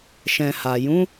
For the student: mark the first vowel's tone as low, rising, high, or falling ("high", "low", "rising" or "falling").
low